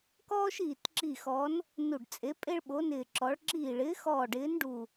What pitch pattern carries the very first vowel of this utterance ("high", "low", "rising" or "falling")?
high